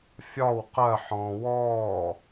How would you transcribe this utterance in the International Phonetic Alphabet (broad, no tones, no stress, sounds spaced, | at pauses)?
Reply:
fʲ ɒ w q ɜ ħ ɔ̃ː w ɔː